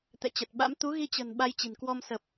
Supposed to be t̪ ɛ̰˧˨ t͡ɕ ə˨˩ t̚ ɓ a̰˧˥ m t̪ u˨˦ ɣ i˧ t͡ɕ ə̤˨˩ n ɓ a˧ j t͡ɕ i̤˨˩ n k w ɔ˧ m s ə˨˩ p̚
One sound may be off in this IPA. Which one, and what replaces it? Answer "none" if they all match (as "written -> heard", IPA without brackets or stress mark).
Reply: none